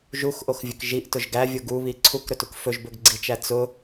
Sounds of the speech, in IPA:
ʒuxʔoxvʲɵk ʒiʔtʊʒ ɡævʲʊ ɡuβi ǀʰukɾɵtuk fɵʒbɵɡɡ͡ǀit͡ʃæ t͡sʊ

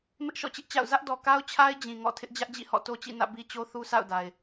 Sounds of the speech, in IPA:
mɪ˦ʔʃɔ̰˦˨t͡ɕɪ˦ʔt͡ɕa̰˦˨ʊ̯ zä˦ʔdɔ˨ ka˦ʊ̯t͡ɕʰa˦ɪ̯ d͡ʑĩ˨ŋɔ̰˦˨ tʰɪ˦ʔd͡ʑä˦ʔd͡ʑḭ˦˨hɔ̰˦˨ to˦t͡ɕḭ˦˨nä̰˦˨ bi˦t͡ɕo˦ θu˦sʰa̰˦˨ʊ̯da˨ɪ̯

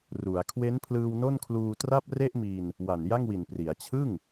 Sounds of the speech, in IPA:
ru˩˦a̯ kʰwe˦˥npʰlɯː˧w no˥˩nkʰluː˧ tra˥˩p̚re˥˩ʔmi˧n | wa˨˩nja˥˩ŋwi˨˩npri˩˦a̯ t͡ɕʰɯ˥˩ŋ

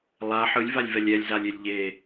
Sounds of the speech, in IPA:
lˠa ħɯlʲvalʲvɛlʲ ɛlʲzalʲelʲ ʎe

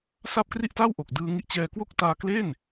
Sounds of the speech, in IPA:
sa˥˩p̚kri˥˩ʔta˥˩wʔo˨˩k̚ dɯː˧ŋi˦˥ʔt͡ɕɛː˧kwo˥˩k̚ taː˧kle˥˩n

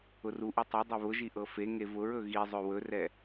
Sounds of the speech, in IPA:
ʊruʔi tˤɵ dˤeβʊʒi ʔɤfeŋe vʊɹɵ ɣizˤɵ wɵrɛ

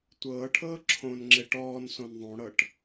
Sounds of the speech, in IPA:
tʷɤːʈʰɤː ǁʰõnŋ͡ǁe ʈɔːnsõn ðˤõɽɤʈ

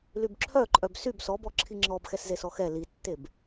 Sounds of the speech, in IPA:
lybǁʰœǃʼœb syb sɔbɔ ǁʰiŋ͡ǁɔbxɛszes ɔxɛ litːeb

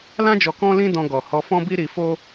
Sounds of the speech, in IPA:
lã˦d͡ʒɔ˧ kɔ̃˦lĩ˦dɔ̃˧ ɡɔ˨hɔ˧fɔ̃˦bi˦ ɾi˧fo˦

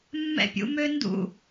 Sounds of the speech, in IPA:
mːɛ̰pʲṵmøndṵ

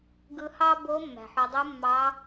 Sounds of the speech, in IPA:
ɡɯ˧hɑ˥bo˧˥ mːæ̤˩ħo˩˧dˤu˧˥ mːɑ˧˥

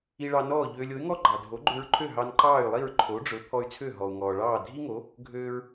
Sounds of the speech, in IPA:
i˧ɭɑ˧ nɔː˥˩ʎøː˧lʲ o˩˥y̯ŋɔ˥ ɡ͡ǃɑ˩dʱo˩˥ɡ͡ǃø˧ɹǃʰø˥˩ ɦɑ˧nǃɑː˥˩y̯lˠi˥˩ɹ ǃʰo˩˥ɖ͡ʐɵ˩˥ pʰɔ˧y̯t͡sʰø˥˩ ɦɔ˩u̯ŋɔː˩ ɭɑː˥˩ dʱi˥ŋo˩˥ | ɡʱøː˧ɹ

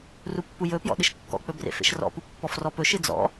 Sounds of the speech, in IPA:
rupːujɵpjɔ̰ ɗɨʃkːɔ̰k͡pɵ brḛfḛʃrɔ̰pu pːɔfrɔpɵʃɨ d͡zɔ̰

